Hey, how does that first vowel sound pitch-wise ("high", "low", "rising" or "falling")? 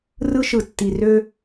high